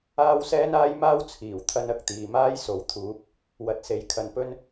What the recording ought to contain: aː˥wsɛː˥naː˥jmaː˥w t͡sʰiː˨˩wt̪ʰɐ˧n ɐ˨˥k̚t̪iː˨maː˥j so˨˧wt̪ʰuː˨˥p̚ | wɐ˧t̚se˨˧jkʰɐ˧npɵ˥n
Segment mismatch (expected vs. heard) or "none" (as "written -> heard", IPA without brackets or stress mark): none